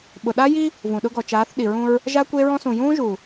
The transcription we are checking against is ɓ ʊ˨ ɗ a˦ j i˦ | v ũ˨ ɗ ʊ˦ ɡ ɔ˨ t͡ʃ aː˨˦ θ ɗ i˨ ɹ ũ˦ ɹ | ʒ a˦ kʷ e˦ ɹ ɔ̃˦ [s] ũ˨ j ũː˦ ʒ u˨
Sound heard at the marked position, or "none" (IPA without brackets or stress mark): s